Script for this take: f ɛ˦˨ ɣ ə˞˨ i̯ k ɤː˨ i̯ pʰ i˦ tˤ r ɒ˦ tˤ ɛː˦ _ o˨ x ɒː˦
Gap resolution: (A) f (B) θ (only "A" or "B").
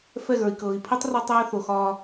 B